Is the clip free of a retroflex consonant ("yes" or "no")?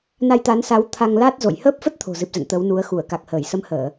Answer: yes